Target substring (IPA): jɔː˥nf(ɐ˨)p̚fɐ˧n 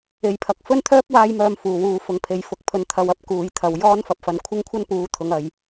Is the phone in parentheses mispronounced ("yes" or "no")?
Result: no